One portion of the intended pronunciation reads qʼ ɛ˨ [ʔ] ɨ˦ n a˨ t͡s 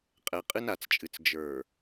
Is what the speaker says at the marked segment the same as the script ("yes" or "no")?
no